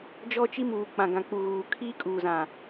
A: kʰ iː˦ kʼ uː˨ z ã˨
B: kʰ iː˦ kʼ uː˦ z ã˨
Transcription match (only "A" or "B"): A